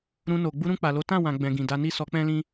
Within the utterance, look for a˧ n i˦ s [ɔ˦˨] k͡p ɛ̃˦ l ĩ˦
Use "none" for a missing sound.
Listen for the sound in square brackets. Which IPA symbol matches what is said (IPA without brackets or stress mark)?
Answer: ɔ˧